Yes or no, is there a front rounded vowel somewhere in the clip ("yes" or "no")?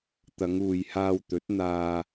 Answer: no